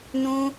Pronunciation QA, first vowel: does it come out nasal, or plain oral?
nasal